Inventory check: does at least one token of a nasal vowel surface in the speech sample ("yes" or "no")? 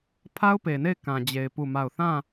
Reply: yes